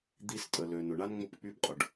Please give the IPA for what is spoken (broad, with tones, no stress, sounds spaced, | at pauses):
d̪ i˧ s tʼ ə˩ l ø˩ n ʊ˩ ɳ a˧ n ŋ͡m ʊ˧ p k͡p y˧ b qʼ ʊ˩ ɖ